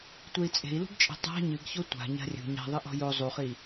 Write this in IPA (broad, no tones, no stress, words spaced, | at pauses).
tʷei̯t͡sʼe̤i̯lṳɡt͡ʃʼe̤ tˤa̤ ɲɨɡ çotʷa̤ ɲa̤rʲṳ ɲa̤ðˤɨʔɔ̤ jo zˤuχi